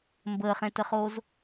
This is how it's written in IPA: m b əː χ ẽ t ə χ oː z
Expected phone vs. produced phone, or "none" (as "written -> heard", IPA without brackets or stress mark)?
none